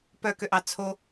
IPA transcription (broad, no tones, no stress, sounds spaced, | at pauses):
p œ k ø ʔ ɑ t͡sʰ o